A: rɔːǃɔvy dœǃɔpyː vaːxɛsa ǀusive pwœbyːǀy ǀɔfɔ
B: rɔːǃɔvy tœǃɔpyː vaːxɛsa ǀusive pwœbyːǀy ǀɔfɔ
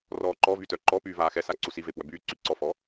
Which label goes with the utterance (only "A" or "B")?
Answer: B